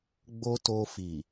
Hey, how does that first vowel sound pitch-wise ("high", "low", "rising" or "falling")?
high